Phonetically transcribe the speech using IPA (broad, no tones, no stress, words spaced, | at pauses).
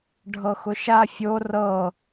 ɖʱɤxʊʃa fʲo rɤ